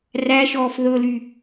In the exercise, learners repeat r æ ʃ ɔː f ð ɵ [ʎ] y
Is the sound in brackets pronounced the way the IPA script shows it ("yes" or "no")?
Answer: no